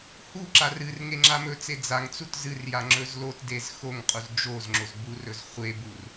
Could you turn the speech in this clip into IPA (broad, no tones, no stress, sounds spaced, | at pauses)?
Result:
h u ǁ a r ɨ r ŋ e ŋ͡ǁ a m ɵ t͡s e d͡z a ŋ t͡s u t z ɨ r j a ŋ͡ǁ ɵ z l o t d e z x o ŋ qʼ u z d͡ʒ o z ŋ͡ǁ o z b u r ɵ z χʷ e b u r